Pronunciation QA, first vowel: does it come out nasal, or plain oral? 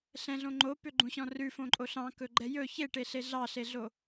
nasal